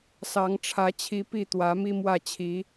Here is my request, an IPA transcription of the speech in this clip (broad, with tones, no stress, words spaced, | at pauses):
sɑ˨˦ŋʈ͡ʂʰä˨˦t͡ɕʰi˨˦ pi˥˨t̪wä˨˦ mi˦mwä˥˨ t͡ɕʰi˨˦